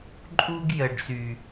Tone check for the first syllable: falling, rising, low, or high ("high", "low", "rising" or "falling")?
high